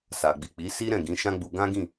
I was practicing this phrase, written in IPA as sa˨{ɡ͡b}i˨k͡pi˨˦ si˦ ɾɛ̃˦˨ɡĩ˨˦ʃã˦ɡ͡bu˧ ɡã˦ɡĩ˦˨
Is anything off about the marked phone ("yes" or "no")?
no